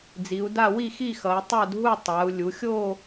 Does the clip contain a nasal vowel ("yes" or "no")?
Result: no